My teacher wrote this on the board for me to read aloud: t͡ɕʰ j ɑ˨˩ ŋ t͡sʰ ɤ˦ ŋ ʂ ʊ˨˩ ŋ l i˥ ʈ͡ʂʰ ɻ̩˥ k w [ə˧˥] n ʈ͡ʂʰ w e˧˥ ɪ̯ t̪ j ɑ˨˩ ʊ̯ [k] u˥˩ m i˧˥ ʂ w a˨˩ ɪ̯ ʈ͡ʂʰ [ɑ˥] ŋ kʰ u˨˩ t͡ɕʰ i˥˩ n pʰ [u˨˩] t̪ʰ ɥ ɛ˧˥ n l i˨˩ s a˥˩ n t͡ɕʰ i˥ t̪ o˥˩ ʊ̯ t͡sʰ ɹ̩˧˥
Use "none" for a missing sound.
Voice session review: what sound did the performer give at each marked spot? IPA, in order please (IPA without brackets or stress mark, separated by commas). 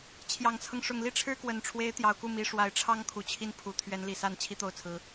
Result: ə˨˩, k, ɑ˥, u˨˩